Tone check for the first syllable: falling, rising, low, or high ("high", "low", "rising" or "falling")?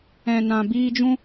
low